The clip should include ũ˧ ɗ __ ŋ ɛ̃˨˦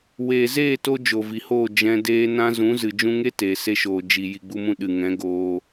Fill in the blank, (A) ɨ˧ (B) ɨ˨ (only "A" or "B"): B